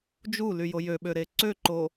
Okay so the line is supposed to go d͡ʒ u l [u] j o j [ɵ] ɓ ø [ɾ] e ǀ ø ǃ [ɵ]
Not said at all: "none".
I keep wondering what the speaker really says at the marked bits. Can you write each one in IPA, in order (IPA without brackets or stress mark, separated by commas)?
y, ø, ɾ, o